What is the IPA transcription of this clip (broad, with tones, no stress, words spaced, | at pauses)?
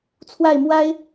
t͡sʰwa˥˨ɪ̯mwa˦ɪ̯